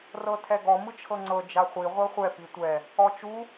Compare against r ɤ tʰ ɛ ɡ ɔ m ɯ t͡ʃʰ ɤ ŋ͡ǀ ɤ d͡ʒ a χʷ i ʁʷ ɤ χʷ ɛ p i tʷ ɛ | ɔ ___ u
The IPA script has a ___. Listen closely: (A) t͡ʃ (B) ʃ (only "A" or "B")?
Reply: A